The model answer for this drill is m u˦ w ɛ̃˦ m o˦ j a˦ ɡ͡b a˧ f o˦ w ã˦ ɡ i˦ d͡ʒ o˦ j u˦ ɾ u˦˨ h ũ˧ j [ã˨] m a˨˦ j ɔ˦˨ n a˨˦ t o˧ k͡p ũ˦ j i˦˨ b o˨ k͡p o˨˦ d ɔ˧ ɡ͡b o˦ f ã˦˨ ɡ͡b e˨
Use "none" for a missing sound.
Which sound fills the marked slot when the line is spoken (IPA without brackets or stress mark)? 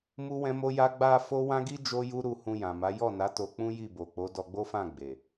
ã˨